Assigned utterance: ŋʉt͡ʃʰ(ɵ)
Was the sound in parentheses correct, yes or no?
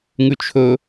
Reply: yes